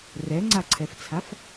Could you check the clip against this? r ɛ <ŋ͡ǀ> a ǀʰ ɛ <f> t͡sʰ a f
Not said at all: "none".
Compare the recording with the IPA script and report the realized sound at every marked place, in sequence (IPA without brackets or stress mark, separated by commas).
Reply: ŋ͡ǀ, f